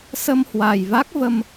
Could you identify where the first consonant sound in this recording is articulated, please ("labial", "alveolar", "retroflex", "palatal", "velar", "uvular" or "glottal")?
alveolar